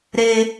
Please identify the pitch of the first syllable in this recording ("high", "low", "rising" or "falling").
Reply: low